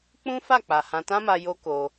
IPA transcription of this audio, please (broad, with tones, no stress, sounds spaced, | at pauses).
k͡p ũ˦ f a˦˨ k͡p a˨ h ã˧ t ã˦ m a˧ j o˦ k o˧